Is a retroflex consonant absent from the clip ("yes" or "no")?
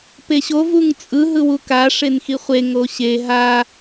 no